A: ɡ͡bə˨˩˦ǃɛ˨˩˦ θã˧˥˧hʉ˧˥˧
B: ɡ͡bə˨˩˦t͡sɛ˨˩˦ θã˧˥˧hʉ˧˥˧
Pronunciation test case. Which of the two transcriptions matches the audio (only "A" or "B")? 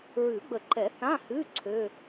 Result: A